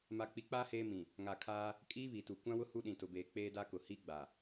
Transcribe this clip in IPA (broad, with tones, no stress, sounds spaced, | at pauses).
m a˨ k͡p i˨˦ k͡p aː˦ h eː˦ m ĩ˨ | ŋ a˨ kʰ aː˦ | kʼ iː˦ β i˨ t u˨ kʷ ã˦ w ʊ˦ h u˦ ɗ ĩ˨ t ʊ˨ b eː˨ k͡p eː˦ d a˦ k ʊ˨ h i˦ ɡ͡b a˨